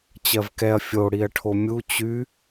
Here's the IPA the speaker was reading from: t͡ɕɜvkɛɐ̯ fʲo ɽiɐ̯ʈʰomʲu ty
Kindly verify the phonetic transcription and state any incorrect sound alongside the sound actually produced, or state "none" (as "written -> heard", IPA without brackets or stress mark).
t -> t͡ɕ